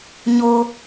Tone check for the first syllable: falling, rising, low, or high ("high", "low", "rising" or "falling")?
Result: low